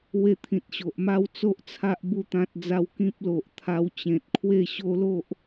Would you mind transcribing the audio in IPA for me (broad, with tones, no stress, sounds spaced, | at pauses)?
w e˧ t̪ʰ ĩ˨ t̚ ɕ o˨ ʔ m a˥˧ w t͡s o˦ ʔ t͡sʰ a˦ ʔ b u˥˧ t̪ ã˦ t̚ d͡z a˦ w k ĩ˦ p̚ l o˨ ʔ t̪ʰ a˧ w t͡ɕ ẽ˨ t̚ kʰ w e˥˧ ɕ o˦ l o˦ ʔ